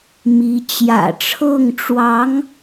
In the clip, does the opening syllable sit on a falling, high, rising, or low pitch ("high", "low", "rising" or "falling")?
rising